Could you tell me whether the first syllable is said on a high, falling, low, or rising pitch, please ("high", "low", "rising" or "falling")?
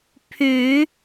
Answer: low